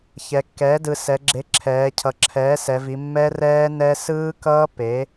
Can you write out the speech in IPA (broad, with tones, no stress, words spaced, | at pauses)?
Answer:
çɛ˩˧kːɛː˩˥dɯ˩˧ sɛ˩˧ɡ͡ǁe˩˥ ǁʰɛː˩˧ cʰʌ˩˧ǁʰɛː˩˥sɛ˩˧vi˩˧ mːɛ˦˥rɛː˦˥nɛ˦˥ sɯː˦˥kʌː˦˥ pe˩˥